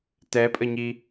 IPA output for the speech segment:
t ɛ pʼ ə ɲ i

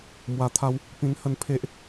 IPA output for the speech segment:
m w a˧ t̪ʰ a˦ w | p ĩ˧ n h ə˥˧ n pʰ e˦ ʔ

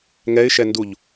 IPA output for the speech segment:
ŋ ɛ ɪ̯ ʃ ɛ n d u ʎ

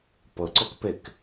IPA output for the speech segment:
p ɤ ǀ o k p e k

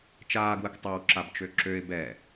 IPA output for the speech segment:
t͡ʃ aː ɡ w ə k tˤ ɛ w ǁ a b t͡ʃ ø ǁ ø ɪ̯ b ɛ

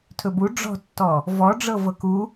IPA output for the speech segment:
tʰ ɵ b u ɖ͡ʐ ɔ̤ tː ɔ | v ɔ ɖ͡ʐ ɤ v ɤ k u

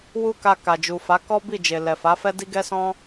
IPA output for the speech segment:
w u˦ k a˧ k a˨ d͡ʒ u˨ f a˨˦ k ɔ˦ b i˦˨ d͡ʒ e˨ l ɛ˨ f a˨˦ f ɛ˦ d i˦ ɡ ɛ˦ s ɔ̃˦

